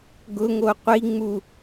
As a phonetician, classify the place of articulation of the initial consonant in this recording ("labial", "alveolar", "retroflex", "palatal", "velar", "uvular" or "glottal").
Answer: velar